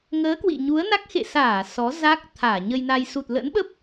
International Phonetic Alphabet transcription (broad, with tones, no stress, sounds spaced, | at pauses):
ŋ əː˨˦ k w ḭ˧˨ ɲ u˨˦ ə̯ n a˦˥ k̚ x ḛ˧˨ s aː˧˩ s ɔ˨˦ z a˦˥ k̚ t̪ʰ aː˧˩ ɲ ə˧ j n a˧ j s u˨˩ t̚ l ə̰˧˥ n ɓ ə˦˥ p̚